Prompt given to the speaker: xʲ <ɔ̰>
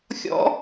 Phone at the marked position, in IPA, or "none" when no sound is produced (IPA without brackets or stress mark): ɔ̰